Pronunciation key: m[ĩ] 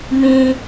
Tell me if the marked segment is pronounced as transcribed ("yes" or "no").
yes